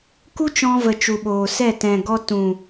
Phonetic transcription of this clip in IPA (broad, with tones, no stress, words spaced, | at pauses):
ku˦t͡ʃɔ̃˧ və˨ t͡ʃu˨ɓoː˨ sɛ˦˨ tɛ̃˨ɡɔ˧ tũ˨